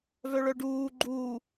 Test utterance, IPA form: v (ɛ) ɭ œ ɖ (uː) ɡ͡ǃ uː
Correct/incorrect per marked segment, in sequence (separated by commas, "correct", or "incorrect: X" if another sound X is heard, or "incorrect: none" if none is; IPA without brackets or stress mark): incorrect: œ, correct